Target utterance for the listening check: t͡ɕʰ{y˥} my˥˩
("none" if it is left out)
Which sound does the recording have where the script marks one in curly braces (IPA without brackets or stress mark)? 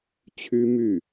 y˥